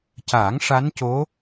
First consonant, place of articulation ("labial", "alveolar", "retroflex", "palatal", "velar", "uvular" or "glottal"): palatal